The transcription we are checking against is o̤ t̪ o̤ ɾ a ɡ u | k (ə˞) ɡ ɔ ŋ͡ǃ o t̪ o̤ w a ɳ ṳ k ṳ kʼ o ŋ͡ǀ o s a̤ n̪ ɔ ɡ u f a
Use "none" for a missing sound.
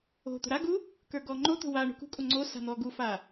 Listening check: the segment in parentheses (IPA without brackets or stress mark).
ə˞